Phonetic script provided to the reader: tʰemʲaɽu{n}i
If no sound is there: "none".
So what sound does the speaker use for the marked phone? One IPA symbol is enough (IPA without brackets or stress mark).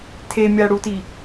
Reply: t